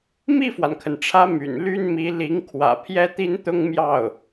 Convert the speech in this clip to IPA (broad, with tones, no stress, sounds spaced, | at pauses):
m i˥˩ f w a˩ n kʰ ə˩ n ʈ͡ʂʰ ä˧˥ m y̰˨˩ n l y˥ n m i˧˥ l i˧˥ ŋ kʰ w ä̰˨˩ pʰ j ɛ˥ t̪ i˥ n t̪ ʊ˥ ŋ m j ɑ˥˩ ʊ̯